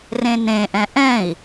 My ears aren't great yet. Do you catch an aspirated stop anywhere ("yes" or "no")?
no